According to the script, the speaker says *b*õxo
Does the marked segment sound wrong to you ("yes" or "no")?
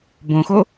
no